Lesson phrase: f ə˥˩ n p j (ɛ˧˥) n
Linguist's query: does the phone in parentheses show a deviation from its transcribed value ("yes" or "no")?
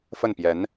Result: no